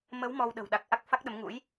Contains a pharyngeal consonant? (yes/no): no